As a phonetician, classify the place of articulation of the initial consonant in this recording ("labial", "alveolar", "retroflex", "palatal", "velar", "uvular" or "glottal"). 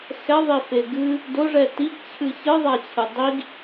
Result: velar